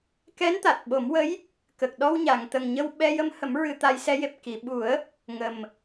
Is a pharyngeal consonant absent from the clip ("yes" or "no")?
yes